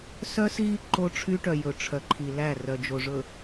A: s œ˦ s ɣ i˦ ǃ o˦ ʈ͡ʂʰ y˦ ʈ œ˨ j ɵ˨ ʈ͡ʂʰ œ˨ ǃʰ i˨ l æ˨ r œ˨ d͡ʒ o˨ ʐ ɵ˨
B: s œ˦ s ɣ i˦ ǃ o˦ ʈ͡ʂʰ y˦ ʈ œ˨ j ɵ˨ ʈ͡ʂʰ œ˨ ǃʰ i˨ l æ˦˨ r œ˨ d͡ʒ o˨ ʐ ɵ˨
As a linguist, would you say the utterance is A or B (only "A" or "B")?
B